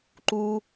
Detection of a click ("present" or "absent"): present